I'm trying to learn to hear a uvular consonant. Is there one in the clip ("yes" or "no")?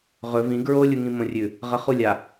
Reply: yes